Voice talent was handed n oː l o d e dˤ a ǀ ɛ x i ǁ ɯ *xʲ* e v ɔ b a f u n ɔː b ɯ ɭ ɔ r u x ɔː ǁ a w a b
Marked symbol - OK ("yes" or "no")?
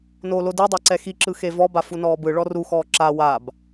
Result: no